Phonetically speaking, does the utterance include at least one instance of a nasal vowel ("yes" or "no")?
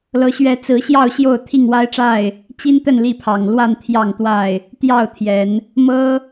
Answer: no